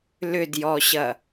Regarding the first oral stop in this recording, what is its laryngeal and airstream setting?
plain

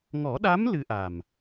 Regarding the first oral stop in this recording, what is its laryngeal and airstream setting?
implosive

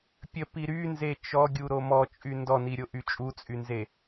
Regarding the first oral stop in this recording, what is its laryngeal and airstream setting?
plain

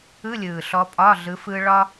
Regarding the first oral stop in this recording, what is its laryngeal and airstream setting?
ejective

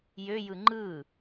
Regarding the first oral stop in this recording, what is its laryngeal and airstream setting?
click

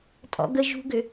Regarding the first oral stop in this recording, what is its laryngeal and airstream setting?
ejective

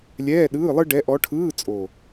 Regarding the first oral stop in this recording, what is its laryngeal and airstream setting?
implosive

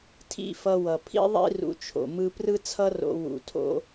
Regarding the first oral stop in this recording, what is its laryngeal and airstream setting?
aspirated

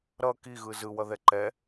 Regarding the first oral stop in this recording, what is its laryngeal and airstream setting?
plain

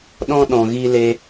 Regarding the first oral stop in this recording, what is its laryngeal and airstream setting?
implosive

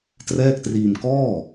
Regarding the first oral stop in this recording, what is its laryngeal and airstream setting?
plain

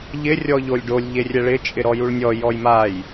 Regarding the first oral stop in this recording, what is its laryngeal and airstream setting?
plain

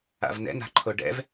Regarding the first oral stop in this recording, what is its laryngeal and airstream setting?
click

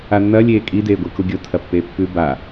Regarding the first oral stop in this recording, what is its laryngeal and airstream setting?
ejective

